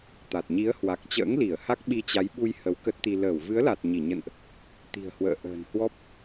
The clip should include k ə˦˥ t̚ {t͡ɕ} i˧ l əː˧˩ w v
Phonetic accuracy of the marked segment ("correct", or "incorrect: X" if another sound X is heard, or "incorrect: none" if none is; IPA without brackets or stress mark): incorrect: t̪